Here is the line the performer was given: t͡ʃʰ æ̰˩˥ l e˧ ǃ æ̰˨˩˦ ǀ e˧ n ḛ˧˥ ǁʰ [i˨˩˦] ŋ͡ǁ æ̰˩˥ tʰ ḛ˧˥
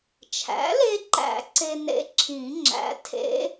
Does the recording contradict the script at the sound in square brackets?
yes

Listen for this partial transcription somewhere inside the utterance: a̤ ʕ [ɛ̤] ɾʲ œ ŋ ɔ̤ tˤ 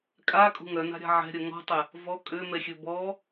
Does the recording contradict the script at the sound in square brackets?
no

